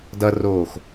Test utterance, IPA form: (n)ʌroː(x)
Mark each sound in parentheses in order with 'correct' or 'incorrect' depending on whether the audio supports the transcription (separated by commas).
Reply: incorrect, correct